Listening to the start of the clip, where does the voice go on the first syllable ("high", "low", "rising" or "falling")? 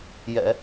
low